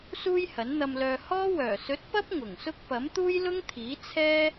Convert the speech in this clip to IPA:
suː˥jhɐ˨˥nn̪ɐ˧mlœː˧ hɔː˥wœː˨˩ sɵ˨˥t̚pɐ˥p̚ ŋʊ˨˩ŋsʊ˥k̚ pɐ˨˥mt̪uː˥jlʊ˥ŋt̪ʰiː˨˥ t͡sʰɛː˥

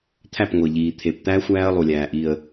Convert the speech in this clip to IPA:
t̪ʰæ˦˨pŋʷe˨ʎiː˨ t̪ʰe˨pt̪æ˦ xʷæː˦ə̯lˠu˨lʲæː˨ʔi˨ə̯

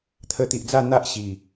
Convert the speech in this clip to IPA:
t̪ʰə˧t̪i˨ʔd͡za˥˧ n̪a˦ʔ ɕi˨˩

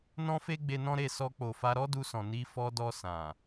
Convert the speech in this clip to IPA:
nɔ̃˦fe˦ ɡ͡be˧nɔ̃˦ ɾe˦˨sɔ˧k͡po˨fa˧ ɾɔ˦du˧sɔ̃˨ ni˧fɔ˧dɔ˧ sã˨

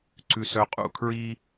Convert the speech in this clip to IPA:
ǀʉ˨s œ˨qʼṵ˨kʰɹi˦

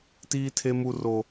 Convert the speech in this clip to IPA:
tiː˦tʰe˦ mu˦ro˦

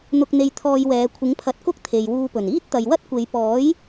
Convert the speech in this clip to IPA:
n̪ʊ˧k̚n̪e˧j t̪ʰɔː˧jwɛː˨˧ kʷʰɪ˨˥ŋpʰɐ˨˥t̚kʊ˥k̚ t̪ʰe˨jwuː˧pɵ˨˩n iː˥t̚t̪ɐ˨jwɐ˥t̚ kʷe˨˧jpɔː˨˥j

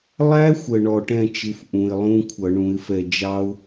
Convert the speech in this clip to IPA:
lˠæ˦˥xʷə˨˩ ɳɔ˨˩ʈɛ̃˦˨t͡ʃɪ˨˦f ʔũ˨˩ɪ̯lˠũ˧˥˧ kʷʰʌ˧˩˧ɳũ˨˦ɪ̯fɛ˦˨ d͡ʒɑ˦˥ʊ̯

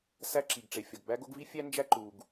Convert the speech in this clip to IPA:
sæ˥ǁi˩ɡʈ͡ʂe˩ fʲɒ˩ɡbæ˥ɡo˥ɡ vi˥fʲæ˥nd͡ʒæ˥ ǃu˩ɡ

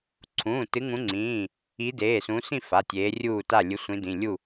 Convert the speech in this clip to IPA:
ǀʰũː˩˧˩tɨ˨˦ŋũ˨˦ŋ͡ǀĩː˩˧˩ | i˨˦deː˩˧˩sũ˨˦sĩ˥˨ fa˩˧˩tʲeː˨˦rʲuː˥˨ta˥˨ lʲɨ˨˦sʷĩ˨˦dĩ˩˧˩lʲu˥˨

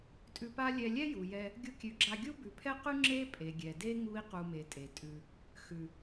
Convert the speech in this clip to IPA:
tʼʉ˧pa˦ lʲɛ˧ lʲɛ˦ju˨jɛ˧ | ɡʲu˧kʲʉ˨˦ɡ͡ǁa˧ ɡʲu˦bʉ˨pʰɛ˦qʉ˦ ŋ͡ǁe˦pʼe˨ɡʲɛ˨de˦ ŋu˦i̯ qu˧me˨tʼe˨ tʼʉ˧ | xʉ˨

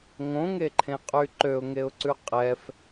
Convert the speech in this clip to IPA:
ŋõŋeǃʰẽ qʼyǃøʊ̯ŋeʊ̯ǀʉ qʼɛf

